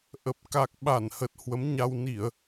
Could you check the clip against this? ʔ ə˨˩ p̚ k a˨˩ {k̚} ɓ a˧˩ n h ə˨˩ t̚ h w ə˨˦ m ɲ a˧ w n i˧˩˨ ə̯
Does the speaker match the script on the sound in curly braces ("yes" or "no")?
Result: yes